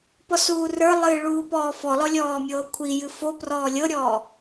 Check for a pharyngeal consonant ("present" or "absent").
absent